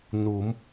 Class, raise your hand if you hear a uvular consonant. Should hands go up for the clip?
no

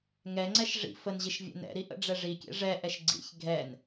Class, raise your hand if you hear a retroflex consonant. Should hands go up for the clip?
yes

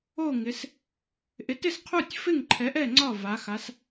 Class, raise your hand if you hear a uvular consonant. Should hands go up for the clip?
yes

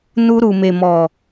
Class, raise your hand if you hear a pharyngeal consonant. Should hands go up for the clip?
no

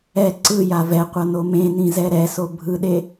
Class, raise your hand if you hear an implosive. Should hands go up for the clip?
yes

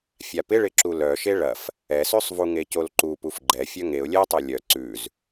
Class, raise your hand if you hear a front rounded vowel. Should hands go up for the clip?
yes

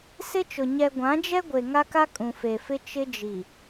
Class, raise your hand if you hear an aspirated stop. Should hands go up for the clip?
no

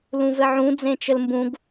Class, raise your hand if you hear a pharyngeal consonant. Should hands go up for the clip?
yes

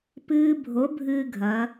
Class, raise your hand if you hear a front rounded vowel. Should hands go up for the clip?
no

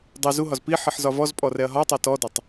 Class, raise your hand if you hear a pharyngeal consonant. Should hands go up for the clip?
yes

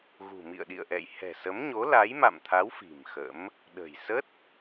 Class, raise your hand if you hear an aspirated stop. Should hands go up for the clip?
yes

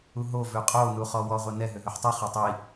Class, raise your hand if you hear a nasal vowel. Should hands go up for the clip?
no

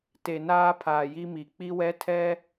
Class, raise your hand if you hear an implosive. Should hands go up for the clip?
no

